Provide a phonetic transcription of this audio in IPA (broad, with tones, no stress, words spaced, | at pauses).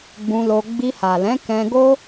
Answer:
ɡ͡bũ˧lo˧ ɡ͡bi˧ha˨lɛ̃˨˦ kɛ̃˧ɡo˦